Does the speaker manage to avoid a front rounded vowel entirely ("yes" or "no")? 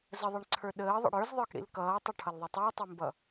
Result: yes